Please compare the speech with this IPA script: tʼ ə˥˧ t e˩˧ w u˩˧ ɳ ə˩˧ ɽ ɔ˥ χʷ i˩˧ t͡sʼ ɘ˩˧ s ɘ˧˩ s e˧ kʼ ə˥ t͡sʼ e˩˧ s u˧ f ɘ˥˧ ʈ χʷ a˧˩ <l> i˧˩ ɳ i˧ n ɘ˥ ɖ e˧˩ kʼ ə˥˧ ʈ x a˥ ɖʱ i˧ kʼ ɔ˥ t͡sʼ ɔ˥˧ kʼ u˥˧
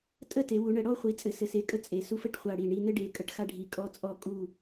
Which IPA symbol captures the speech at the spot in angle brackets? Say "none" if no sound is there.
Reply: ɽ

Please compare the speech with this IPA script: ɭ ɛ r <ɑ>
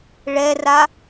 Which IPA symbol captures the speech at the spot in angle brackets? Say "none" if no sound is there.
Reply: a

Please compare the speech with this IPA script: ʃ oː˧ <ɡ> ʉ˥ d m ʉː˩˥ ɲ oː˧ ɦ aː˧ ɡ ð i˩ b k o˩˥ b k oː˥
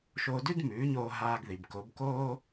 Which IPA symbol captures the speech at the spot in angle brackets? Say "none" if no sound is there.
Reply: d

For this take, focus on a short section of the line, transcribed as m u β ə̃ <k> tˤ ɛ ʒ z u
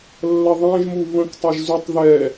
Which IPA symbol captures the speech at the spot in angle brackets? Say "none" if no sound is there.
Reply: k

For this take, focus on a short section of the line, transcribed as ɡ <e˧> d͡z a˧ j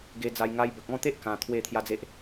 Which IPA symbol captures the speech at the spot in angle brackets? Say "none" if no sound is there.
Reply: e˧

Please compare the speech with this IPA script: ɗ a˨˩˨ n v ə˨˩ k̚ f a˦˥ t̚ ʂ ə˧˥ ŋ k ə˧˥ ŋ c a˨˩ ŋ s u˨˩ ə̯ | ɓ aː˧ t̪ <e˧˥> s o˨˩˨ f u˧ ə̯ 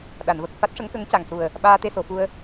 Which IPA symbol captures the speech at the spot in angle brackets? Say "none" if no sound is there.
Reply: e˧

